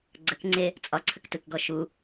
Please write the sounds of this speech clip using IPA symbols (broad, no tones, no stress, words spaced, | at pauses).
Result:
ɡ͡ǀəkŋ͡ǀe | t͡sʼɒǀʰəktɯkɡɔ ʃu